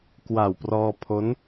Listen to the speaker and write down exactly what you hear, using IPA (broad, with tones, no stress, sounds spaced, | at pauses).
k w a˨˩ w p r ɔː˧ pʰ o˦˥ n